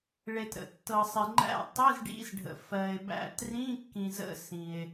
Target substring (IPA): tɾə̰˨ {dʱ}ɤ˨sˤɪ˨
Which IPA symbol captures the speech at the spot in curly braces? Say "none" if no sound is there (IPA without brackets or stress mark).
tː